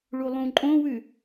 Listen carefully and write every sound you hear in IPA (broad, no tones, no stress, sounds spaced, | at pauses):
ɭ u lˠ ũ ǃʼ õ w ʉ